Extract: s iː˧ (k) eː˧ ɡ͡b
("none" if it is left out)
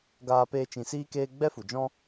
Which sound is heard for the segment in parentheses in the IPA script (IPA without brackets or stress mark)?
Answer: k